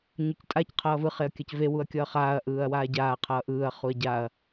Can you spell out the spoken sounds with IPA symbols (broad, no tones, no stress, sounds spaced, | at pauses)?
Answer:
ɲ o c tʼ a c qʰ ʌː v ɯ χ e ɐ̯ kʲ a c v e w u ɐ̯ kʲ ʌː χ aː ɐ̯ ʔ ɯː ɐ̯ w aː ɟ aː qʰ ʌː ʔ ɯː ɐ̯ χ u ɐ̯ ɟ a ɐ̯